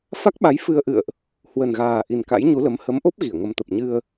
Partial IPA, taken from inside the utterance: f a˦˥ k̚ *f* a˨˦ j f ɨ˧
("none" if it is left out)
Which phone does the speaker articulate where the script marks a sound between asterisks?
ɓ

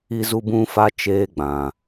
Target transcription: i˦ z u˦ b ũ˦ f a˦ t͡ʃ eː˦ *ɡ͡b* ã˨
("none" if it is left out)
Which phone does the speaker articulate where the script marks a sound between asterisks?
ɡ͡b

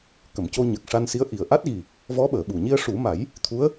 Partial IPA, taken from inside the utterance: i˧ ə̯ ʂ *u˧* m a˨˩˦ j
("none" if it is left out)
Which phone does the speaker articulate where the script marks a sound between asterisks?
u˨˩˦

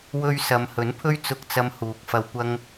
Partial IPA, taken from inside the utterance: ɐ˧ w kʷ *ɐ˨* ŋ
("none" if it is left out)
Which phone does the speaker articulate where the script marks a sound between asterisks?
ɐ˥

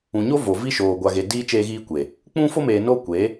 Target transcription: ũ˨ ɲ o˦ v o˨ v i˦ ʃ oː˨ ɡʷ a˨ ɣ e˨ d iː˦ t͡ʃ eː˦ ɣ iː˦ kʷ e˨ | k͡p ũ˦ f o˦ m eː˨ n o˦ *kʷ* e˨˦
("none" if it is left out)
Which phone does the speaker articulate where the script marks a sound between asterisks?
kʷ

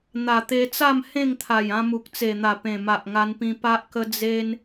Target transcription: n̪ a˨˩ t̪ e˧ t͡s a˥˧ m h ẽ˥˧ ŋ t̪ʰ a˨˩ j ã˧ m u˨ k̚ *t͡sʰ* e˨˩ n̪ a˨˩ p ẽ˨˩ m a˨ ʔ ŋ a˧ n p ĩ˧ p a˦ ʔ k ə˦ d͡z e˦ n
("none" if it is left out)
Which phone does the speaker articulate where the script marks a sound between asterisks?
t͡s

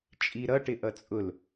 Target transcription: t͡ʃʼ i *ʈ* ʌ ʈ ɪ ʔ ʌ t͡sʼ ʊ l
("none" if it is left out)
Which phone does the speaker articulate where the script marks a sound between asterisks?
ɾ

